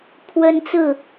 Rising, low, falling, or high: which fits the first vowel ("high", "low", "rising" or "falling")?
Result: high